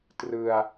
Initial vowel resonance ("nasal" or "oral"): oral